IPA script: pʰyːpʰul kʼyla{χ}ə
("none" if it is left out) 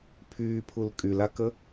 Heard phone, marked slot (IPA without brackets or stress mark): k